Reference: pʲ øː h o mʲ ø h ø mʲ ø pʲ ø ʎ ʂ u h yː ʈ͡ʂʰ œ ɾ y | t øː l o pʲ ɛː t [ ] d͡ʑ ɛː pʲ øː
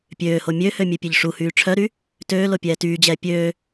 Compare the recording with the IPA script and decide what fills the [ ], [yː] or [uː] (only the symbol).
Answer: yː